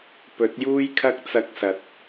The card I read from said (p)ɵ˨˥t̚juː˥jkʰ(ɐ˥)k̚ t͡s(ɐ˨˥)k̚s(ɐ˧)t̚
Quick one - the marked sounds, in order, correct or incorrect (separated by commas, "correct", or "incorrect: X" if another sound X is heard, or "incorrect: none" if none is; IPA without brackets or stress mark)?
correct, correct, incorrect: ɐ˥, correct